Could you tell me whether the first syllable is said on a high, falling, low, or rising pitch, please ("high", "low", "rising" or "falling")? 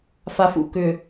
low